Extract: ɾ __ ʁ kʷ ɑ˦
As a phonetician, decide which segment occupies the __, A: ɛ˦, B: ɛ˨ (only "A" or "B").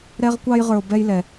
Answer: A